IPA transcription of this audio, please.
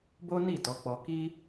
b o˦ n i˦˨ t ɔ˨˦ k͡p ɔ˧ k i˦

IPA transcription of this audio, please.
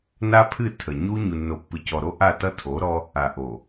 n a˦ pʰ ɨ˦˨ tʰ ə˨ ɲ u˦ ɲ u˨ nː o˨ pː ɨ˨ c ɔ˨ ɾ o˦ ʔ a˦˨ t ʌ˦ tʰ o˨˦ ɾ ɔ˦ | a˨ ʔ o˨

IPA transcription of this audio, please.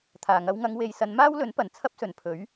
t̪ʰ aː˨˩ ŋ ɐ˧ w ŋ ɐ˧ ŋ w e˨ j s ɐ˨˧ n m aː˥ w l ɵ˨˥ n p ɐ˨˩ n t͡sʰ ɐ˥ p̚ s ɵ˨˩ n pʰ ɵ˨˥ ɥ

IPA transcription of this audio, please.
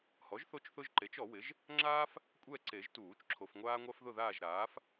h ɔ˩˥ ʒ θ o˦˨ t͡ʃ θ ʊ˦ ʒ ǃ e˩˥ t͡ʃ ɔ˨˩˦ w ɪ˩˥ ʒ | ŋ͡ǁ aː˦ f | kʷʼ ɛ˦˨ ǀ e˨˩˦ ʒ t uː˨˩˦ t͡ʃ ǁʰ o˨ f ŋʷ aː˦ ŋʷ a˦ f ð ʊ˦˨ ð aː˦˨ ʒ ɾ aː˩˥ f

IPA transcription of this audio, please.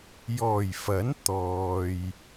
j ɔː˨˩ j f ɐ˨˥ n t̪ ɔː˨ j

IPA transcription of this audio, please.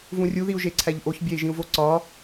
v ũ rʲ u ð i u̯ ʒ e ǀʰ æ ʎ ʔ o ç bʲ æ i̯ ʒ ĩ u̯ v o ǀ ɒ

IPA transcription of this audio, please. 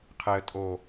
qʰ e ə̯ tʼ o

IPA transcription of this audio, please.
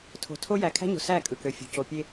tʰ o̤˨ tʰ o˦ j æ˨ kʰ æ̤˦ ɲ o̤˨ s æ˦˨ kʼ ɯ˨ k ø˨ fʲ o̤˨ c o˨ pʲ e˦

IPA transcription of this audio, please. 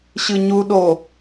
ɕ ɯ ɲ u ɗ o

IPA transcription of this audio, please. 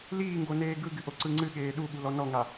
l iː ŋ ɡ o n eː ɡ ɯ ɡ ɨ ʔ o ǀ ɯ ŋ͡ǀ ɨ ɠ eː ɗ u ɠ u l ɔ n ɔ ŋ a

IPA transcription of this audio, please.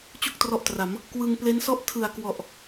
t͡ɕ u˥˩ k̚ t r ɔ˦˥ ʔ t r a˩˦ m | k w ɯ˧ ŋ p l e˦˥ n s ɔ˥˩ ʔ tʰ ɯ˨˩ a̯ k w ɔ˨˩ ʔ

